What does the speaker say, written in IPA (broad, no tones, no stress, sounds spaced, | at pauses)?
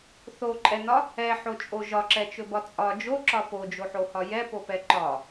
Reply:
θ o ǃʼ ɛ n ɒ | ɛ ħ o t͡ʃʼ o ʒ ɒ ǁ ɛ t͡ʃ ɵ b ɒ t͡sʼ ɒ d͡ʒ o ǁ ɒ p o d͡ʒ o ħ o h ɒ j ɛ p o p ɛ ǃ ɒ